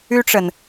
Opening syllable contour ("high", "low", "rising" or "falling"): high